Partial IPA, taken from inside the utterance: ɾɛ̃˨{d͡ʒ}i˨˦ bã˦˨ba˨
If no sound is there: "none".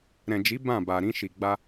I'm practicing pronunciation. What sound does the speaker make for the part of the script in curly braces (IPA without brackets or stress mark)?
d͡ʒ